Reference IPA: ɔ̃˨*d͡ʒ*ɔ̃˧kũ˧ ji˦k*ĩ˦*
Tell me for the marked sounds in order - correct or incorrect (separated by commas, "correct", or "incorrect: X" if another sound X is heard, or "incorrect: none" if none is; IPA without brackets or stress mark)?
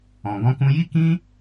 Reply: incorrect: ɡ, correct